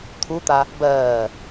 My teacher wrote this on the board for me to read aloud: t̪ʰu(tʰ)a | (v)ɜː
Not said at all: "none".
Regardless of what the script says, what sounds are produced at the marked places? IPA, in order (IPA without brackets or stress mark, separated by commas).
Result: t̪, b